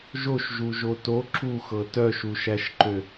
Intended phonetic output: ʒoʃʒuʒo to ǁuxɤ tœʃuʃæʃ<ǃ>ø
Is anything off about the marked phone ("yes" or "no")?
no